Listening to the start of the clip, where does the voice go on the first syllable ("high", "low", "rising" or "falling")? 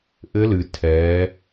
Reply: rising